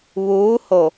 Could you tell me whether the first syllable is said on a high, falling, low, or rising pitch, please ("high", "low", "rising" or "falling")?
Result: rising